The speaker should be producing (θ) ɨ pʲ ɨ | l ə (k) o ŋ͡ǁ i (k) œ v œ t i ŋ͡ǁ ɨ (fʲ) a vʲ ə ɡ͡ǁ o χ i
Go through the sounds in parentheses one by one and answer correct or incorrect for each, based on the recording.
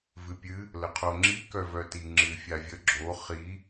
incorrect, incorrect, correct, correct

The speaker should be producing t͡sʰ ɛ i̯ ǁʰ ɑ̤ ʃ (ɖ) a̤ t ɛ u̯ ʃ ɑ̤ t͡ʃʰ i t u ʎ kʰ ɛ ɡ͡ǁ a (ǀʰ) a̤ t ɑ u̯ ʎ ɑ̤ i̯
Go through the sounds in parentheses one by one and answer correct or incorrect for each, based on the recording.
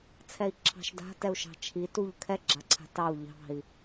incorrect, correct

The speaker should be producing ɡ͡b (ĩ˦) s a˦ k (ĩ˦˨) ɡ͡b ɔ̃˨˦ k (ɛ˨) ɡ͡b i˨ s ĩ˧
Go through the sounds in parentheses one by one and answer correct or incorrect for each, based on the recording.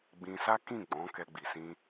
incorrect, correct, incorrect

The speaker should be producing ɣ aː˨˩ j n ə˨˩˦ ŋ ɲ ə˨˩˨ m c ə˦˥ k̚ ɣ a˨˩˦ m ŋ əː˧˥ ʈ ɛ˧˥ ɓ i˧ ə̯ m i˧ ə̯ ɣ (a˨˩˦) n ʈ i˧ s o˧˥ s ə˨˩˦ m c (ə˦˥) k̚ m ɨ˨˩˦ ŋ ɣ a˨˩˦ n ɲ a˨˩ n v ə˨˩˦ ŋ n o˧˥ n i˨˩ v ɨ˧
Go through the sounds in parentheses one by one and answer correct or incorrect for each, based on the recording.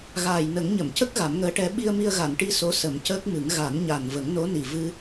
incorrect, incorrect

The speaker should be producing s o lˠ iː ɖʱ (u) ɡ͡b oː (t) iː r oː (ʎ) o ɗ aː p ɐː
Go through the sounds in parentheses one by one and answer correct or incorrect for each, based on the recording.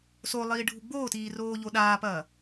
correct, correct, correct

